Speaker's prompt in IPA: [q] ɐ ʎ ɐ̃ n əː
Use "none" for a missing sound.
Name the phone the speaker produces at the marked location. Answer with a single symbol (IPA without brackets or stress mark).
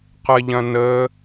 q